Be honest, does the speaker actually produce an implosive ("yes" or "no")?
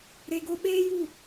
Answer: yes